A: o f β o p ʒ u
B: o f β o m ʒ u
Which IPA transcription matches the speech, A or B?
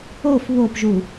A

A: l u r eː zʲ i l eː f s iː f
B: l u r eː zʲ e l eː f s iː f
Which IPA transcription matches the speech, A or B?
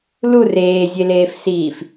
B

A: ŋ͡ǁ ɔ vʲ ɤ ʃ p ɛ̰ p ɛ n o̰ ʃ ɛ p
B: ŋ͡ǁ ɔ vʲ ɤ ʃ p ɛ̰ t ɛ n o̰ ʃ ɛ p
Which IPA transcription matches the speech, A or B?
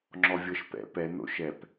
A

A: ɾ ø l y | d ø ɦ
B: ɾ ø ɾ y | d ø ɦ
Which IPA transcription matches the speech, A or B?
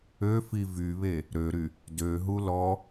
B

